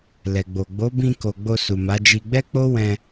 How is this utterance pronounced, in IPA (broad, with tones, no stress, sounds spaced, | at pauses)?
l ɛ˨ ɡ͡b o˨ ɡ͡b o˨˦ b ĩ˧ k o˨ ɡ͡b o˧ s u˨ m a˨˦ d͡ʒ i˧ ɡ͡b ɛ˦ k͡p o˦ w ɛ̃˧